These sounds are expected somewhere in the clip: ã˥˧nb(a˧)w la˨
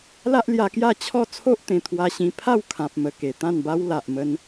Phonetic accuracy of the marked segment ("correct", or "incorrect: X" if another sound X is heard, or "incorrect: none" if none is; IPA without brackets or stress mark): incorrect: a˦